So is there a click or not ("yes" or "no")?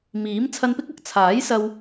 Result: no